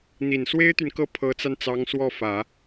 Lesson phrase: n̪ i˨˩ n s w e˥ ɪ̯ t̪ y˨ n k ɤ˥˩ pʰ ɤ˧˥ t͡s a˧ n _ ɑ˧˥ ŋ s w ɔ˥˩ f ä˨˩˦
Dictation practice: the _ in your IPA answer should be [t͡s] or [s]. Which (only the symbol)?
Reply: t͡s